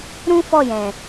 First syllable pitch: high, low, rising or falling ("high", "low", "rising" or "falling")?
high